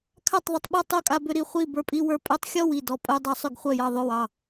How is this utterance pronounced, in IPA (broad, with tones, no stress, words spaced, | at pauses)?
kʰa˥˩tˤðˤʏ˧tˤɓɔ˥˩tˤ o˥˩kʼa˧bʏ˧ ɾi˥˩χʷi˥˩ bə˞˧pʼi˧wə˞˧ pʼœ˧tˤxʲɔ˥˩w i˥˩dɔ˧ pʼœ˧ dˤɑ˧sˤʏ˥˩ɡ χʷœ˥˩jɑ˥˩ðˤo˥˩wɑ˥˩